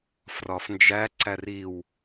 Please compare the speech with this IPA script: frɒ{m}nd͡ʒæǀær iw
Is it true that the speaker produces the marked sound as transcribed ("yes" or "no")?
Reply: no